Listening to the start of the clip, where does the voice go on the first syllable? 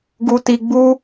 low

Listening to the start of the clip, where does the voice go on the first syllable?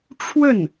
falling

